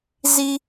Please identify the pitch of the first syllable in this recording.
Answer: high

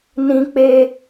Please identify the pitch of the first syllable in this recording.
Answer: high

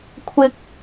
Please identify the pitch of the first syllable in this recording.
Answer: high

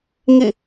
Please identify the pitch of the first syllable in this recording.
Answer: falling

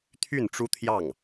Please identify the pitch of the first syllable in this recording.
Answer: falling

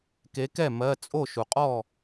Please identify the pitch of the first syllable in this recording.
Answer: rising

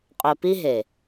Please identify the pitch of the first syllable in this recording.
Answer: low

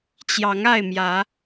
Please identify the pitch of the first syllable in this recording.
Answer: rising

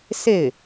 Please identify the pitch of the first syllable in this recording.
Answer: falling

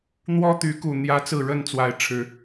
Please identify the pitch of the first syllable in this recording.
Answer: high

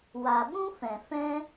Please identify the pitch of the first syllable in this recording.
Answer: low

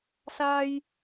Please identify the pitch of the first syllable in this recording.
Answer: high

